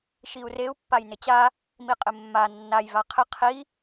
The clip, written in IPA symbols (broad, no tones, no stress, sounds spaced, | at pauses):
ʃ i u̯ r e u̯ pː a j n ɪ t͡ɕ a | m i qʼ ɪ mː a nː a j v a qʰ ɪ qʰ i